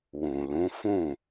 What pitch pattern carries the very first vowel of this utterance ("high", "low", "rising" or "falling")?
low